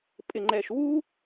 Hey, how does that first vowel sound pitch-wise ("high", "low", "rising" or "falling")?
low